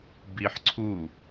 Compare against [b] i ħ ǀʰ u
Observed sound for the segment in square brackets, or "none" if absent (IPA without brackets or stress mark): b